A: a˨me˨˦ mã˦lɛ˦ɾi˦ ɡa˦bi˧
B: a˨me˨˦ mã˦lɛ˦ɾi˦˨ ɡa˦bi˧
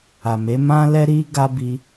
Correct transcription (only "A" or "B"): A